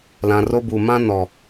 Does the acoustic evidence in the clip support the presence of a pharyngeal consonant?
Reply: no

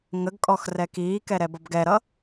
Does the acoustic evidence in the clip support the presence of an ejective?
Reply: yes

